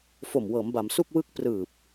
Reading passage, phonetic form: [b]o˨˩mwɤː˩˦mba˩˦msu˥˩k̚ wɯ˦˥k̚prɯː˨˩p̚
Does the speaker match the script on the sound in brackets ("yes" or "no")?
no